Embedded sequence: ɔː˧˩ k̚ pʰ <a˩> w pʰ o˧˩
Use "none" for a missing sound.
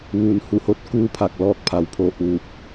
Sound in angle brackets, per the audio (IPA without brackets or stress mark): a˩˧